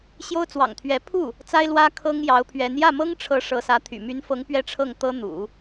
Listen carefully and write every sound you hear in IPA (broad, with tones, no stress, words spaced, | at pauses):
ɕjo˥ʊ̯t͡swɑ̰˨˩ŋt̪ʰɥɛ˧˥ pʰu˥˩ | t͡sa˥ɪ̯lwä˥ kʰɤ˥ŋjɑ˧˥ʊ̯pʰɥɛ˧˥n jä˥˩mɤ˥ŋʈ͡ʂʰɤ˧˥ ʂɤ˧˥sä˧˥t̪ʰy̰˨˩ my˧˥nfɤ˧˥ŋ pɥɛ˥˧ʈ͡ʂʰɤ˥˩ŋt̪ɤ˥n̪ṵ˨˩˦